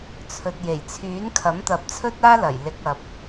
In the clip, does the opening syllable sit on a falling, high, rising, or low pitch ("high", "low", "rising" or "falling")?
low